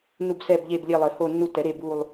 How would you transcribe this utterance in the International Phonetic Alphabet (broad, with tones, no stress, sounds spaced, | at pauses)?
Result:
n u˦˨ b s ɛ˦˨ b ʎ e˦˨ b lʲ e˦˨ lˠ ɘ˨˩˦ h o˦˨ nː u˦˨ t ɛ˨˩˦ ɾ e˦˨ b u˦˨ lˠ